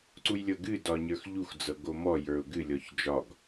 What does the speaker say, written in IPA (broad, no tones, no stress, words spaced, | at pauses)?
ǀujlʲɤɡɨ dɒɲə˞xʎux d͡zɤɡomɔ jə˞ʊ̯ɡɨ lʲɔçd͡ʒɒɡ